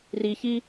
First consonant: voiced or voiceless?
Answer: voiced